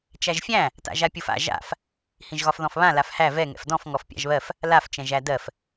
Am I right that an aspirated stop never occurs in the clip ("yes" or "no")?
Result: yes